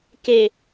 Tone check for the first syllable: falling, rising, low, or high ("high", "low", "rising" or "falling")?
low